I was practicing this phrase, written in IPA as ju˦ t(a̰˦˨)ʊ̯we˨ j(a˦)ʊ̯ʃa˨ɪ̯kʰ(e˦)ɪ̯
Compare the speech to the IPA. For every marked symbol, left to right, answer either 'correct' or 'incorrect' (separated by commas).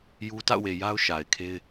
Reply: correct, correct, correct